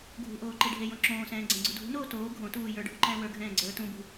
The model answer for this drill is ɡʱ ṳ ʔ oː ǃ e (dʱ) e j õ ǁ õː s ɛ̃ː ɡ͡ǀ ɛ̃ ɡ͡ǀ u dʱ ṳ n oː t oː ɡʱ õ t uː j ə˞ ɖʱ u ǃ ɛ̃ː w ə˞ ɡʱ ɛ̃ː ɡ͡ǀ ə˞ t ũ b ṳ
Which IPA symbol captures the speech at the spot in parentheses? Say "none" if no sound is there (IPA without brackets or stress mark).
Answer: ɖʱ